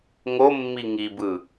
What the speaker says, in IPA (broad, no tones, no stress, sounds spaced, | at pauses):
ŋ o mː i ŋ i b ɯ